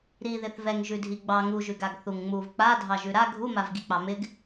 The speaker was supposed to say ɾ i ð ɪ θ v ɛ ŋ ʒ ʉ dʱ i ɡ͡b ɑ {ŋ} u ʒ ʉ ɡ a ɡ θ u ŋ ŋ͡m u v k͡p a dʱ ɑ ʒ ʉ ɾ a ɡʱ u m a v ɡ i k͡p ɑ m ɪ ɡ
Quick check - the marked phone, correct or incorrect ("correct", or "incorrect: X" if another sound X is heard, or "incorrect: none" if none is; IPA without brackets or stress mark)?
correct